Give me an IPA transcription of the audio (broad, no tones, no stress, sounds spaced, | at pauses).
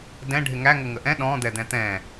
d ɛ̃ ɖʱ ɪ ŋ æ ŋ ʊ ŋ ə ʔ ɛ̃ ɗ ɔ̃ d̪ ɛ d̪ ɛ̃ t̪ ɛ̃